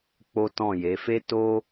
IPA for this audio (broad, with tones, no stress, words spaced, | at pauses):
k͡po˦tɔ̃˦˨je˨˦ fe˦to˦